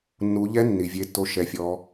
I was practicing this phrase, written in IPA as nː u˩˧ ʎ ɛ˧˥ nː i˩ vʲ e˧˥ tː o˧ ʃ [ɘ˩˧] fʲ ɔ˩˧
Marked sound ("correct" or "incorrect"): incorrect